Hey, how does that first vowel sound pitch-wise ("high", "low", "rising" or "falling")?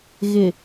low